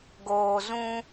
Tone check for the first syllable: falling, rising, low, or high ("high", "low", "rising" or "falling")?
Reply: low